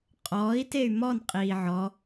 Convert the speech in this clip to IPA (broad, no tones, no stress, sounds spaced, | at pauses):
qʼ ɔː i̯ t e y̯ m ɔ n qʼ iː ʕ ɔ